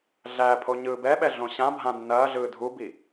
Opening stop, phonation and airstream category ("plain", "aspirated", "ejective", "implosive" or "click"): aspirated